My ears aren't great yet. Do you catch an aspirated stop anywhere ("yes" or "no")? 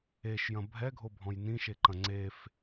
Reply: no